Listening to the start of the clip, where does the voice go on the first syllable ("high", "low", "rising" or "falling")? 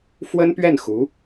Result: high